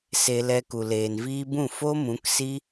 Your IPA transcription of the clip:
s e˧ l ɛ˧ k u˨ l eː˨ n v iː˧ b ũ˦˨ f o˦ m ũ˨˦ k s i˦

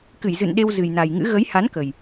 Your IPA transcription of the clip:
k ɨ˧˩ j z ɨ̰˧˨ n ɗ e˧ w z ɨ˨˩ j n a˨˩ j ŋ ɨ̰˧˥ ɣ ə˨˦ j h a˨˦ n k ə˨˩ j

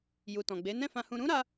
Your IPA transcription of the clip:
j u˨ t ɔ̃˨ ɡ͡b e˨˦ n ɛ̃˦˨ f ã˧ h ũ˧ ɾ ũ˦ ɾ a˧

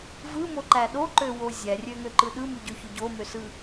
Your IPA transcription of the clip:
v ɯ m o ǃ æ ɗ o ǃ ø w o zʲ æ rʲ ø ŋ ø ǃ ɯ ɗ ɯ m y ɟ ø ç ø ɟ o m ø s ɯ

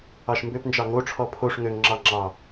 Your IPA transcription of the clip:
ɑ ʃ m b ø p n d͡ʒ ɑ ŋ o ʈ͡ʂʰ ɔ pʰ o ʂ ŋ ø ŋ ŋ͡ǁ ɑ ŋ͡ǁ ɑ

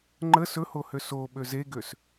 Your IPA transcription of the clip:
ŋ͡ǃ ə s ɵ h o h ø s o ɓ ø z e ɡ ø s

